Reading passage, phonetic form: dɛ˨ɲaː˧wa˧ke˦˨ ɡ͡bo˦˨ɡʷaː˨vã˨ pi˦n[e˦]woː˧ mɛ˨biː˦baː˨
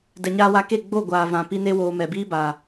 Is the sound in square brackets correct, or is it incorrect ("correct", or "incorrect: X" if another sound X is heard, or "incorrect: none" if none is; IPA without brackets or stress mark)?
correct